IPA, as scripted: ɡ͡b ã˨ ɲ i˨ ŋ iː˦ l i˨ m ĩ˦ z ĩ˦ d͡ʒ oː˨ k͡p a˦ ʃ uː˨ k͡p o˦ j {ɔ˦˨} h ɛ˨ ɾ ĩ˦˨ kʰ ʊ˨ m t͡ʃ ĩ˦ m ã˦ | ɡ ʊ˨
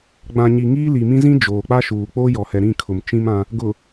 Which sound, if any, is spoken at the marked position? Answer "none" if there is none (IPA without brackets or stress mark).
ɔ˨